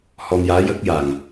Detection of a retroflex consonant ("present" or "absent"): absent